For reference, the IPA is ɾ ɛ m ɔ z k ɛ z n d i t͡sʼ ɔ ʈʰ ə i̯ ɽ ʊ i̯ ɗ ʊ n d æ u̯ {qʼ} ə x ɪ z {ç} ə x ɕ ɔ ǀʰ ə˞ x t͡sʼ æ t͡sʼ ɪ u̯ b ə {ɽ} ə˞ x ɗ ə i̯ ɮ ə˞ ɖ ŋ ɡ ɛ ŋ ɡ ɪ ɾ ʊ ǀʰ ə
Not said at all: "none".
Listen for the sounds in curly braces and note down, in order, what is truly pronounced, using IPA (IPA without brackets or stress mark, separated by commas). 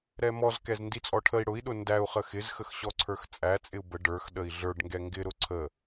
χ, x, ɖ